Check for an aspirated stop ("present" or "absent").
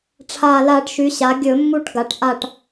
present